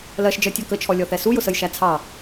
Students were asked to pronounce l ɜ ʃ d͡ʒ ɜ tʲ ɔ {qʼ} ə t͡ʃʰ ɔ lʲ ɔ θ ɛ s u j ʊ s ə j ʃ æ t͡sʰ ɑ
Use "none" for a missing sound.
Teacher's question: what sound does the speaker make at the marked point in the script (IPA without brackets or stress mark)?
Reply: k